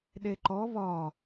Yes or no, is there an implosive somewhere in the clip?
yes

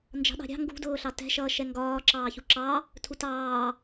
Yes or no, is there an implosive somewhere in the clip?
yes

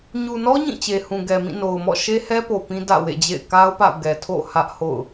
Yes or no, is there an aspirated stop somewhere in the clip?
yes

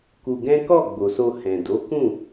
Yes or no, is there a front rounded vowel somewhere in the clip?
no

